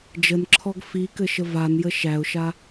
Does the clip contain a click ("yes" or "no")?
yes